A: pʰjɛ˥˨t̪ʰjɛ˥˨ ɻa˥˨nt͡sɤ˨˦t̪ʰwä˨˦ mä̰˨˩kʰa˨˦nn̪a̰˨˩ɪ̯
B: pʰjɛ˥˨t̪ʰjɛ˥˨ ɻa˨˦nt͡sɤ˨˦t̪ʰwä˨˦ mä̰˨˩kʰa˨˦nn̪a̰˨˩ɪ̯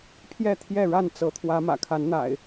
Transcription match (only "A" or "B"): A